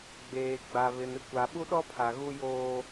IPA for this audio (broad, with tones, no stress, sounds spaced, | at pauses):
ɡ͡b eː˨ ɡ͡b a˨ β ɪ˨ n ɪ˦ kʷ a˨ ɓ u˦ ɗ ɔ˦ pʰ a˨ ɣ u˦ j oː˦